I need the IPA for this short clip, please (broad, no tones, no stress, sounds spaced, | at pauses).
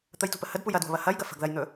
t̪ ə j t ṳ p ə h ə d p u j ɐ d w ə̤ β ɐ h ɐ j ɡ ɐ f ə̤ ɡ ð ɐ j n̪ ɵ